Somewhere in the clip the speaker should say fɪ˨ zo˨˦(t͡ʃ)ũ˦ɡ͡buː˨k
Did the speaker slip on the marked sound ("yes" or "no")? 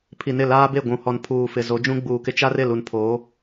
yes